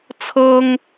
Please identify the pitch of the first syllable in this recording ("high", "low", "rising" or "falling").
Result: high